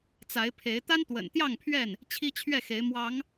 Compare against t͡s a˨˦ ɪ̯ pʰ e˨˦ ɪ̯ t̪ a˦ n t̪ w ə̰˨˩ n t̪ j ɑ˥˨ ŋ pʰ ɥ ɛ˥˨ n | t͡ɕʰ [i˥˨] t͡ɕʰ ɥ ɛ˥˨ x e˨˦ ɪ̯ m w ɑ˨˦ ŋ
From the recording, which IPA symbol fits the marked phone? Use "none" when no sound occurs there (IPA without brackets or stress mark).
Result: i˦